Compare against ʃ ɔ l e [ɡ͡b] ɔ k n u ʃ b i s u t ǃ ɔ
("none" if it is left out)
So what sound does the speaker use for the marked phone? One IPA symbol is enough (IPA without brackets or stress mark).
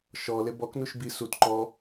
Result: b